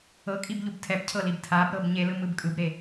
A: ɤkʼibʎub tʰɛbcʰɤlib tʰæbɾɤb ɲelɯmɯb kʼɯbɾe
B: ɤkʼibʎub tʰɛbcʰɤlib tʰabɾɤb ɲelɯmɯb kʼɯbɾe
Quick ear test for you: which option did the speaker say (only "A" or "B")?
B